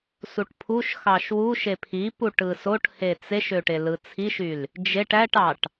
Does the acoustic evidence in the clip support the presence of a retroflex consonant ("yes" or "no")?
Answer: yes